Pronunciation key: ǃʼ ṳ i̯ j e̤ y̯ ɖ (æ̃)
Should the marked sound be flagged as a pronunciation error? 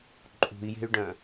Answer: yes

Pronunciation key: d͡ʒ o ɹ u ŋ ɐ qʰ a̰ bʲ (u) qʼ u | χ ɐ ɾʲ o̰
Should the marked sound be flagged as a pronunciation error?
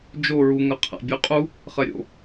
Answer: no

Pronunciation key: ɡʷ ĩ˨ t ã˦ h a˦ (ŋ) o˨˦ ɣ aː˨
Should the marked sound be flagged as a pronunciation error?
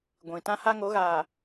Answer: no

